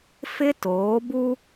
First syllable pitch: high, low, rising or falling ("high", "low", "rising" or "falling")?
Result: high